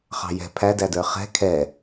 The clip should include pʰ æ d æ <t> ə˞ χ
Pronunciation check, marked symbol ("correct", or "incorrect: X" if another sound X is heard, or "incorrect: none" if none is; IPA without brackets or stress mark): incorrect: d